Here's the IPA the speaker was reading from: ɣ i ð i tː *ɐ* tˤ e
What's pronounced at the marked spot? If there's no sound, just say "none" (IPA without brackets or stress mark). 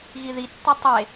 ɐ